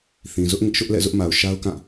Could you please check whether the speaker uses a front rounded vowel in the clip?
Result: no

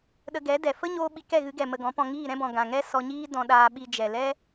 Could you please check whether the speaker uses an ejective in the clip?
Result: no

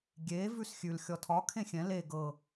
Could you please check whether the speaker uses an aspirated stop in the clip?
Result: yes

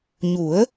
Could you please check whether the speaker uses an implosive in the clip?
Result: no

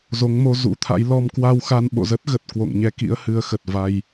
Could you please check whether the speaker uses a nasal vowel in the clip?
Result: no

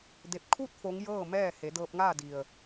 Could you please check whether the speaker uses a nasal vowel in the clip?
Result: no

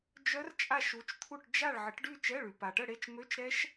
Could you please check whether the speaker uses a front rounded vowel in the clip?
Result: yes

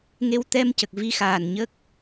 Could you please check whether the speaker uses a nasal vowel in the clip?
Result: no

